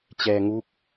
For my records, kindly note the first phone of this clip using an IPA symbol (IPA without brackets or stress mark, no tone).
t͡ɕ